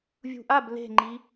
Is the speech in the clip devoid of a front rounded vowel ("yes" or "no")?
yes